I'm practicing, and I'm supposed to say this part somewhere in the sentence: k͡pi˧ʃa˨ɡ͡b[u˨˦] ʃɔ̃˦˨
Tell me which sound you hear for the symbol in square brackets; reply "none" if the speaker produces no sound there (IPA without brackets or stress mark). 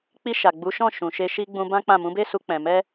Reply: u˨˦